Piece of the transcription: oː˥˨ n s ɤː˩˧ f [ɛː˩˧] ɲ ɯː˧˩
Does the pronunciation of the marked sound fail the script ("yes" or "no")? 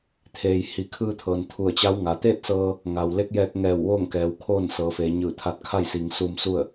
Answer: yes